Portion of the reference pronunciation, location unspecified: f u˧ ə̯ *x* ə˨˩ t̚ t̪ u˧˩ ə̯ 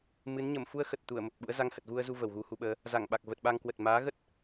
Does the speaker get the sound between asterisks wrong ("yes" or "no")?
no